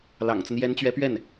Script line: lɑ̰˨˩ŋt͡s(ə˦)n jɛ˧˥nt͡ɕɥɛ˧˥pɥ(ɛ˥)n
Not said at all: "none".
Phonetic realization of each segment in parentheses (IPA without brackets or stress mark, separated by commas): ə˦, ɛ˥˩